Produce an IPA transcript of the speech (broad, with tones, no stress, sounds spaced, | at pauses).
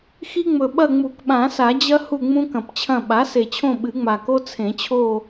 x i˦ ŋ͡m ɵ˨˩ ɓ ɐ˦˨ ŋ͡m u˨˩˦ k ɓ ã˨˩˦ s a˨˩˦ d͡ʑ ɐ˦ h u˦˨ ŋ͡m ũ˦ k ɐ̃˨˩ p t͡ɕʰ ɐ̃˦˨ ɓ a˩˥ s e˨˩ t͡ɕʰ õ˦˨ ɓ ɨ˨˩˦ ŋ͡m a˨˩ k o˦ t͡sʰ ẽ˨˩˦ t͡ɕʰ o˦˨